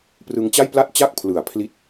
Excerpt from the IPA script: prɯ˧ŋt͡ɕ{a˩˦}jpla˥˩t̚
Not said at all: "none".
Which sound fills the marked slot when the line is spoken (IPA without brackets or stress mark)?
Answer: a˥˩